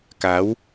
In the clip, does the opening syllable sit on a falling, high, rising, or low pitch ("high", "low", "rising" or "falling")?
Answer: rising